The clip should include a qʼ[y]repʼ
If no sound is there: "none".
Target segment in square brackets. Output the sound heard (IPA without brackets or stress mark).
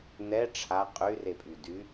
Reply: y